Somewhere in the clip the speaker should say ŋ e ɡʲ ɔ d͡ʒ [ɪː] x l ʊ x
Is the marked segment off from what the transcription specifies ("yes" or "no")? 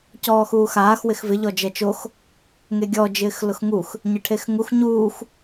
no